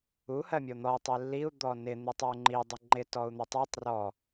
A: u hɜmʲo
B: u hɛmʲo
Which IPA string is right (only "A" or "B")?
A